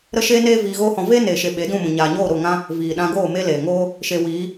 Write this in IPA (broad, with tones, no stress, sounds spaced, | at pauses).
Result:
ɾ ə˦ ʃ eː˦ n eː˦ v iː˧ ɣ oː˦ h ɔ̃˧ v eː˦ n eː˨ ʃ e˨ ɓ e˨˦ d ũ˦˨ m ũ˨ ɲ aː˨ ɲ oː˦˨ ɾ o˦˨ ŋ ã˦ | v iː˨ ɗ ã˧ ɡ oː˦˨ m e˦ l eː˨ ŋ oː˦ | ʃ e˧ w iː˨˦